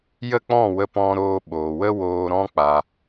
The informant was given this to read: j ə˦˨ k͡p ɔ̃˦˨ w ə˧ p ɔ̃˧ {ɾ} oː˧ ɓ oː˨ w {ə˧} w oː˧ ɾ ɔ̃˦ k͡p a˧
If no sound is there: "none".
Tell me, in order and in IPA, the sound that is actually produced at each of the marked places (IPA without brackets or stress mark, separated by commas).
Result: ɾ, ə˦